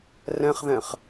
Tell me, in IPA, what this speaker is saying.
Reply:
rɛ̃χðɛ̃χ

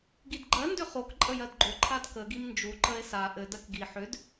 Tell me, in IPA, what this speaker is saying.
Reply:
ɡidɡ͡ǃɜ ndʏχok ǃʼəjɜdɡ͡ǃo ǃʰadkə ɡimnd͡ʒu ǃəe̯sa ʔɘ dɜkɡi ħʏd

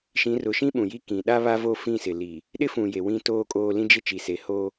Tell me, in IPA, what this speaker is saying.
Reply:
ʃĩ˨˦rʊ˨ʃĩ˦ ɓũ˨ji˦ kĩ˨ ɗa˦βa˦vo˦˨ fĩ˦˨sɪ˨li˨ | ɗɪ˦fũ˨je˨ wĩ˦ toː˦kʼoː˦ lĩ˦d͡ʒɪ˦ t͡ʃi˨se˨ho˦

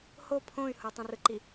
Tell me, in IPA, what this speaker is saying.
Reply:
ho pʰõy̯ hotˤĩrɯǃi

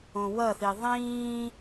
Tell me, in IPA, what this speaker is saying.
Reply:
õwʌθi ðˤĩː

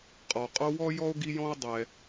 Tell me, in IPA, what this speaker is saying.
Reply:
qʼɔ˩qʼo˦wɔ˥ jɔ˥o̯ɡi˦jɔ̃˥o̯dˤɛ˨

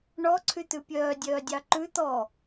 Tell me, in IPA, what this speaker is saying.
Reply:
ɳɔ ǀʰyt̪ʉpʲœː dʲœːdʲɑǃʉ t̪ɔ

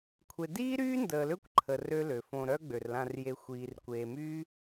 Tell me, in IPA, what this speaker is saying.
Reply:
kʷʰe˨diː˦ɾyː˦ndəː˨ lø˦kʷǃʰə˨ rø˦lø˨fõ˧ ɾœ˦ɡ͡bø˨rlã˧rje˧ xʷiː˨rkʷeː˨myː˦

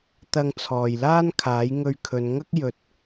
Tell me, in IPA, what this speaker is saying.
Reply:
t̪ɐ˧ŋt͡sʰɔː˨jlaː˥nkʰaː˨˥j ŋɵ˧ɥkʰɵ˨˧nŋɐ˥k̚ jɵ˧t̚

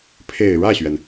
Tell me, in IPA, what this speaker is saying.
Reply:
pʰe˨˩ɪ̯ɻä˥˩ɕɥɛ˩n

